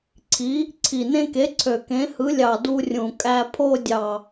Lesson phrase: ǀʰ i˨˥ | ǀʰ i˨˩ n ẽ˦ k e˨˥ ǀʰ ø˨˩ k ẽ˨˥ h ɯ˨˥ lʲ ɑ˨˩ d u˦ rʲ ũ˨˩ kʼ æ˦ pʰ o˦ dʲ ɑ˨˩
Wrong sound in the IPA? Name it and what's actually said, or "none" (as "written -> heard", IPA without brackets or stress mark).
none